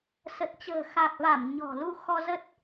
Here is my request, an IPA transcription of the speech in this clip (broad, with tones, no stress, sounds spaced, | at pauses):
s ə˨˩ t̚ t͡ɕ ə̤ː˨˩ x a˨˩ k̚ v a˧˩ m ɲ ɔ̤˨˩ l u˧ x ɔ˧ z ə˦˥ t̚